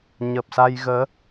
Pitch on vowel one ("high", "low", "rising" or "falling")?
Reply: low